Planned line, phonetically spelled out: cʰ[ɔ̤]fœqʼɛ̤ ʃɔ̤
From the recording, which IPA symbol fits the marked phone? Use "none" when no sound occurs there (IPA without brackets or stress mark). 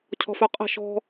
ɔ̤